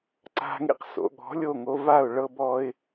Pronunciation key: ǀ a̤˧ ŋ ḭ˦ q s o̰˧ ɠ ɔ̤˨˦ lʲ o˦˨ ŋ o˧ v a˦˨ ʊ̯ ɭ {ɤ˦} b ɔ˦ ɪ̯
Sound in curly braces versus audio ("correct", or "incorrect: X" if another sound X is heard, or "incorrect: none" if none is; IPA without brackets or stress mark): correct